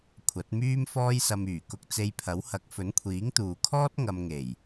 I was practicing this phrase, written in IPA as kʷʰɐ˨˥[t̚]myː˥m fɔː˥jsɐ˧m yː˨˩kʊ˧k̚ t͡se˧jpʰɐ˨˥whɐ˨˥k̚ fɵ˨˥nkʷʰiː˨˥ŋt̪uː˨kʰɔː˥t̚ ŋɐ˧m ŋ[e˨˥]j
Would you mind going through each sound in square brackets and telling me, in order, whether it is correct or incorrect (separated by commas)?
correct, incorrect